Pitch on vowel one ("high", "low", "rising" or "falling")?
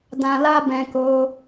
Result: low